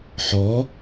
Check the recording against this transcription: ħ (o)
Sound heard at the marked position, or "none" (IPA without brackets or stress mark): ɔ